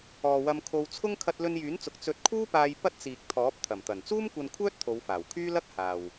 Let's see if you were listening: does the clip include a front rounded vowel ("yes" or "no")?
yes